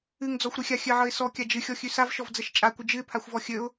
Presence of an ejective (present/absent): present